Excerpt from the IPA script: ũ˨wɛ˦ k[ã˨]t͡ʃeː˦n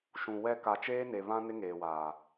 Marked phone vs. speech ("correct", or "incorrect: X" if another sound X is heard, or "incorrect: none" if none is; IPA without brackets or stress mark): incorrect: a˨